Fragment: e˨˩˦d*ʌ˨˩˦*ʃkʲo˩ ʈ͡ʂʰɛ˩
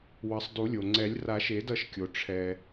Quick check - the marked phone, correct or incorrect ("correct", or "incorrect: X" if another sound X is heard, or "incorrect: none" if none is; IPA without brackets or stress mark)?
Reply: correct